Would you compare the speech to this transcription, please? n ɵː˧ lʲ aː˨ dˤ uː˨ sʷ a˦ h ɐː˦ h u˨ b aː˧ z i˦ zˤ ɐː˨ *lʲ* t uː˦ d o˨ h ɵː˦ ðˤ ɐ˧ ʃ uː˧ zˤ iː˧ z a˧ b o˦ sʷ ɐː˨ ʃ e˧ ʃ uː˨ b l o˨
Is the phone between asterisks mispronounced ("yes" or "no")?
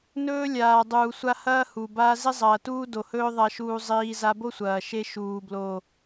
yes